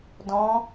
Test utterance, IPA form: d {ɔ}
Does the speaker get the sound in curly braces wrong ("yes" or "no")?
yes